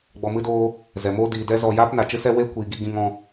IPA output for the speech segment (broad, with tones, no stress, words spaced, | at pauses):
ɡ͡bɔ˨mɨ˧doː˧ | zɛ˨moː˦ diː˨dɛ˦zɔ˧ jaː˦pna˨t͡ʃɨ˦sɛ˦ we˦kʷiː˨ɡi˧ ɡĩ˧ŋɔ̃˧